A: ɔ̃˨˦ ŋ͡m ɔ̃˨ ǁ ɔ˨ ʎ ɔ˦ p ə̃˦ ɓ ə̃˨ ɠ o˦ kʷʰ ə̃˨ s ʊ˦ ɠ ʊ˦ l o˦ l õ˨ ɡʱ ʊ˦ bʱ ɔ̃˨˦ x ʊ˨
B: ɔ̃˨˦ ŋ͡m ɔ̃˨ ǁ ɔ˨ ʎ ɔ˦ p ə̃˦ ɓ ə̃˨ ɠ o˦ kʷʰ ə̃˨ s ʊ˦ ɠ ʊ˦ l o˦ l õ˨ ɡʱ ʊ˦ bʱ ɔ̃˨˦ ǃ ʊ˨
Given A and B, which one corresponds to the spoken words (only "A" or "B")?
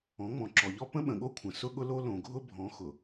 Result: A